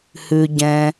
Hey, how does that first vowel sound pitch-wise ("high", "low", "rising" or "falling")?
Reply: low